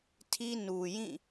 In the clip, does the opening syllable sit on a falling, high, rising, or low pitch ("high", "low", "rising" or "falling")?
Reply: high